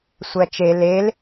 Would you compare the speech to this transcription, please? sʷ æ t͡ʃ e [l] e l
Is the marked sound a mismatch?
no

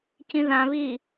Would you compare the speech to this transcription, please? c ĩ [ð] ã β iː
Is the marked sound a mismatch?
no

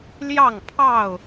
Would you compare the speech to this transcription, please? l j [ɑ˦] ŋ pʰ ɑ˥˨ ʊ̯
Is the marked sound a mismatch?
yes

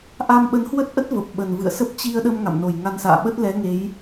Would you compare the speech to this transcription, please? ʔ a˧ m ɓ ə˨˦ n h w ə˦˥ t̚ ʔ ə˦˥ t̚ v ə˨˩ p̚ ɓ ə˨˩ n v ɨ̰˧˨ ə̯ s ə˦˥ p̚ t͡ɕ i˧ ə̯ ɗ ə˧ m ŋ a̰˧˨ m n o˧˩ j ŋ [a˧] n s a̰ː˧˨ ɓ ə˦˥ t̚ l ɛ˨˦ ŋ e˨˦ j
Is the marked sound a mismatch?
no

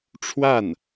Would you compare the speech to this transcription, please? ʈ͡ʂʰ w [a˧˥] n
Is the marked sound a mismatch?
yes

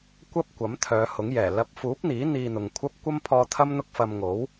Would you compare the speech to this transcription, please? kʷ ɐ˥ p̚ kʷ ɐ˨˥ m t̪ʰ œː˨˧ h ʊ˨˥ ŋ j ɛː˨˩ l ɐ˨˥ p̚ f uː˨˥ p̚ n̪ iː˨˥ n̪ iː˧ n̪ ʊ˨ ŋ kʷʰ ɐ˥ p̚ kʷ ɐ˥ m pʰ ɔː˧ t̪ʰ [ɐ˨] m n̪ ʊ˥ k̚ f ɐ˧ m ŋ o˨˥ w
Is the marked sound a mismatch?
yes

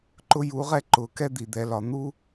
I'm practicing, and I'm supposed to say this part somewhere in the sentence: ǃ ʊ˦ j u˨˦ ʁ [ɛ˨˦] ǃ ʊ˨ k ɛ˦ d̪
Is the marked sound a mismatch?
yes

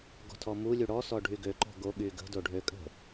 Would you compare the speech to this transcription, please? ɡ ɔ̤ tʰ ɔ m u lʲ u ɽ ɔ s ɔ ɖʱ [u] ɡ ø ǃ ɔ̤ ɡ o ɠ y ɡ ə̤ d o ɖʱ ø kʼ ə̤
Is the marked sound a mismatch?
yes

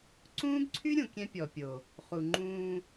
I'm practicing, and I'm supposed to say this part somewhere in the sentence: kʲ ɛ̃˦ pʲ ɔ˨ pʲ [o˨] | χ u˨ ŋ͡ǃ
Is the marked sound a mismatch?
no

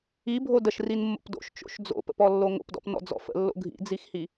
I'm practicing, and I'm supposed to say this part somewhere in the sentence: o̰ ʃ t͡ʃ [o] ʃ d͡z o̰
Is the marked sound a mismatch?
yes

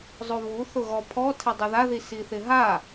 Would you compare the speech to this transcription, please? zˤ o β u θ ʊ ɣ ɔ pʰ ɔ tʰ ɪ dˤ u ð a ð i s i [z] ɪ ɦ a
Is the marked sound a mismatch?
yes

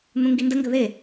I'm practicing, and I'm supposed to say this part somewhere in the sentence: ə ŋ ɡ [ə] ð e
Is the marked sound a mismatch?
no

